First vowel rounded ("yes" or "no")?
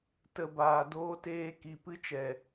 no